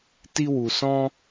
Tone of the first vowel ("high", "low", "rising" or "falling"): high